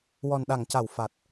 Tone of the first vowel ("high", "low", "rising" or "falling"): low